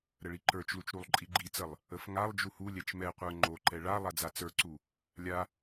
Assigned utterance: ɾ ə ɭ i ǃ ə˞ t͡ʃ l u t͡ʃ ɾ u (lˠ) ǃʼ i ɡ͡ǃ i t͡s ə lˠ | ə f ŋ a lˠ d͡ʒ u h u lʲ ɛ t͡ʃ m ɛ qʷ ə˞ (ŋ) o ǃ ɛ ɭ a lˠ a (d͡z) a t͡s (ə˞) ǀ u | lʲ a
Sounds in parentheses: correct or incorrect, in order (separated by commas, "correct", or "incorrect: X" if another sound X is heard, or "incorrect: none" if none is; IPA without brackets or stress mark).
correct, incorrect: ŋ͡ǃ, correct, correct